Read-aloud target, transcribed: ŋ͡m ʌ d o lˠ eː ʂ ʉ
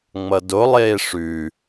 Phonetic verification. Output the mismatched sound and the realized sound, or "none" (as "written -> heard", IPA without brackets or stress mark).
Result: none